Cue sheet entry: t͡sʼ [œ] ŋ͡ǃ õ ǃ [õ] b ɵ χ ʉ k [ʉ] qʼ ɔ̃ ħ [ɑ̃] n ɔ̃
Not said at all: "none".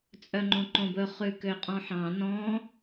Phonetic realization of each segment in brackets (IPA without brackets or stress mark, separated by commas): œ, õ, ø, ɑ̃